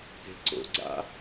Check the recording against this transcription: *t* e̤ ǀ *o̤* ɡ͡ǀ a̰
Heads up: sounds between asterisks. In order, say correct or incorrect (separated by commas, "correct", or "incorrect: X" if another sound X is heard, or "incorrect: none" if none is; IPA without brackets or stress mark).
correct, incorrect: o̰